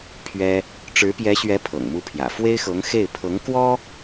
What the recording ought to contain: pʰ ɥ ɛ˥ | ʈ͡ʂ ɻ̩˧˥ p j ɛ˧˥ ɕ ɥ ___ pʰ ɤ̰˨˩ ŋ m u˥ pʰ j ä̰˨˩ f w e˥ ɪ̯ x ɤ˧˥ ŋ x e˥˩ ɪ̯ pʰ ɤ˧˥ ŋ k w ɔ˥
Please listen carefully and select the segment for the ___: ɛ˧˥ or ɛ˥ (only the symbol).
ɛ˧˥